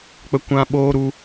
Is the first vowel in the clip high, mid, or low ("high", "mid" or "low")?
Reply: mid